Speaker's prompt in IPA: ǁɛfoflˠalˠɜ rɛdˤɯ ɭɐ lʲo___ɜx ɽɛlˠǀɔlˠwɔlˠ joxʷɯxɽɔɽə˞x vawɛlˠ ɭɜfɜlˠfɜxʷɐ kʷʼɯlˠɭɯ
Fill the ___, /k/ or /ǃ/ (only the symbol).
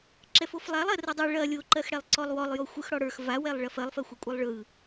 ǃ